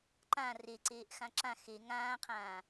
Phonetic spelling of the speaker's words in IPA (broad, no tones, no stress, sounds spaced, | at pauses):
ǃ ã r e ǀ eː ʔ x ã ǁ ã x e ŋ ãː qʰ ãː